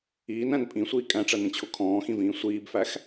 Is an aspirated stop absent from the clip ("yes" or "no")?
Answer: no